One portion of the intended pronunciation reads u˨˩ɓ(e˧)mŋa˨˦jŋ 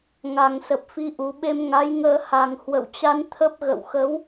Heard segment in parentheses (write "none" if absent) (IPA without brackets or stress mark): e˧